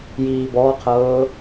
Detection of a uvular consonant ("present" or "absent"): present